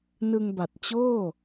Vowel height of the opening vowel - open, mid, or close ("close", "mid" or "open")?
close